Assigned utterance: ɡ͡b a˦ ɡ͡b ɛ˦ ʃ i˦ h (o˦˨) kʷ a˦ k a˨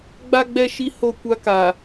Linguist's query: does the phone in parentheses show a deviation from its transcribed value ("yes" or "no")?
no